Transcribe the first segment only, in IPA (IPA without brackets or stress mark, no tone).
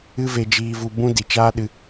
ɨ